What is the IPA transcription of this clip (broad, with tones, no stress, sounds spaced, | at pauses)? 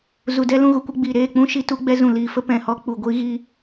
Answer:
z u˨ d ɛ˦ l ũ˧ ɣ u˨ kʷ ɛ˦ ɡ͡b iː˨ ɾ eː˦˨ k͡p ũ˦ ʃ i˧ t u˦ ɡ͡b ɛ˦ z ũ˨ l iː˨ f ə˦ p ɛ̃˨ h ɔ˦ k͡p u˨ ɡʷ i˦ ɣ iː˦